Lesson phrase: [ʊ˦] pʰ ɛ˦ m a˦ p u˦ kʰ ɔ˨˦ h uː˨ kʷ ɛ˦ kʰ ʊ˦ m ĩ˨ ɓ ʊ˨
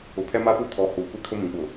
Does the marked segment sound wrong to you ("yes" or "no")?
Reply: yes